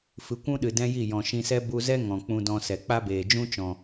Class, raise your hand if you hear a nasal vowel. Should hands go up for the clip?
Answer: yes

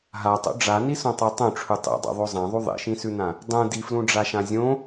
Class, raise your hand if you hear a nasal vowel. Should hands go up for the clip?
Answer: yes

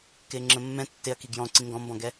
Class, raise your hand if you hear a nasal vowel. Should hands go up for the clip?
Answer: yes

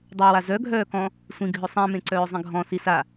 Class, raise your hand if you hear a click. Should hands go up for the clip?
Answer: yes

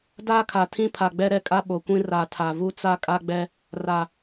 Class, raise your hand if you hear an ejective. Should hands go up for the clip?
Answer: yes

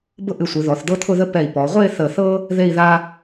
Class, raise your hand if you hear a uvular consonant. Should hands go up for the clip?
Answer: yes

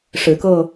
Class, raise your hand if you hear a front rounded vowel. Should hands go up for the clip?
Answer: no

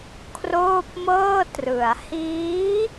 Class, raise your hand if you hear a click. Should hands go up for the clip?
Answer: no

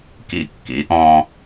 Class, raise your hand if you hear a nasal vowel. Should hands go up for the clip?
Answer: yes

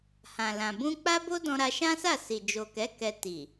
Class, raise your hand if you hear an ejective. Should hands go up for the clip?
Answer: no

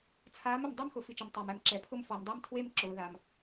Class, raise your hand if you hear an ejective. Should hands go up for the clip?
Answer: no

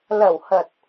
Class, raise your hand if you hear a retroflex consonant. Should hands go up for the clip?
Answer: no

